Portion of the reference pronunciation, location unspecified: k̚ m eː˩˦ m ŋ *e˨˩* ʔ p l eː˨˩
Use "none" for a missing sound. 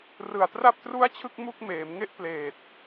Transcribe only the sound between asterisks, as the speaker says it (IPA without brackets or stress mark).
e˥˩